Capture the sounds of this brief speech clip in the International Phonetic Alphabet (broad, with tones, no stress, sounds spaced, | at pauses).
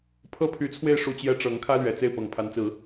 pʰ ɤ˥ pʰ y˧˥ t͡sʰ w e˥˧ ɪ̯ ʂ u˥˩ t͡ɕ j ɛ˥ ʈ͡ʂ ɤ˧˥ ŋ kʰ ä˥ l ɥ ɛ˨˩ t͡s e˥˩ ɪ̯ p ɤ˨˩ ŋ pʰ a˧˥ n t͡s ɹ̩˨˩˦